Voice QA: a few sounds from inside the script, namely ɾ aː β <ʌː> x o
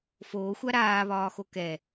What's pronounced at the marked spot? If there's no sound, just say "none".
ɒː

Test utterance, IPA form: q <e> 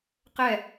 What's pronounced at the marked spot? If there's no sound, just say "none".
ɛ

